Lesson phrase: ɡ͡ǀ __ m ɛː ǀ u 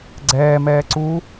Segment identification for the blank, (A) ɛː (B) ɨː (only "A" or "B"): A